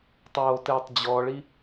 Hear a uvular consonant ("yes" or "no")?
no